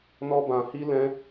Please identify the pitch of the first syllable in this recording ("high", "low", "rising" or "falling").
high